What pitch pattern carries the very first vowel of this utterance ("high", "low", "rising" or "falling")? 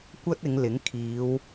high